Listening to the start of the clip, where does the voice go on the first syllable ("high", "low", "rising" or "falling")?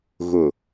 low